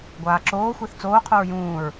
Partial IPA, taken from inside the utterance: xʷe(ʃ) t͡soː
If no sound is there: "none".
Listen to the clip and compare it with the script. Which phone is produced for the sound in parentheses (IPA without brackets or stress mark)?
θ